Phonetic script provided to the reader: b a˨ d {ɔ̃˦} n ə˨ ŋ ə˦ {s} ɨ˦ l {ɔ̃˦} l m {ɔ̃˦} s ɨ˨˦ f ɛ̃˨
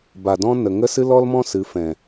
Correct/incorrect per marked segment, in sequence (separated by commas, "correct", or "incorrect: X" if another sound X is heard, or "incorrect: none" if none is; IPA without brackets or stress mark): correct, correct, incorrect: ɔ˦, correct